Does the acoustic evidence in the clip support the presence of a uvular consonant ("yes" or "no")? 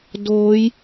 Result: no